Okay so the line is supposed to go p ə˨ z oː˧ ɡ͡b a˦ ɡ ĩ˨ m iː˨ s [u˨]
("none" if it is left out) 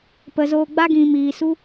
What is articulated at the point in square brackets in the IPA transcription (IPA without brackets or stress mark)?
u˦